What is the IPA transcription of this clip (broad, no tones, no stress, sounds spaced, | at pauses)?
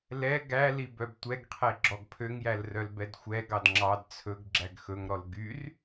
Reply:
l ɛ ɡ æ l i b œ b tʷ ɛ ɡ qʰ e ɡ͡ǁ ɔ ɡ pʰ ø ŋ j æ l r œ l b ɛ d xʷ ɛ ɡ ɑ d ŋ͡ǁ ɑ d t͡sʰ ɵ ɡ ɡ͡ǁ æ ɡ x ɵ ŋ ɾ ɔ l ɡ y r